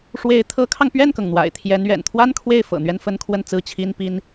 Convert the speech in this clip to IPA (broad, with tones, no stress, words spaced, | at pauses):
ʂwe˧˥ɪ̯ t̪ʰɤ˧˥kʰɑ˧ŋpɥɛ˥˩nkɤ˩ŋ n̪wa̰˨˩ɪ̯t̪ʰjɛ˧˥nɥɛ̰˨˩n t̪ʰwa˥nkʰwe˥˩ɪ̯fɤ̰˨˩ n̪ɥɛ˥˧nfə˥˧nkʰwə˥˧n t͡sɹ̩˥˩t͡ɕʰi˥npi˥n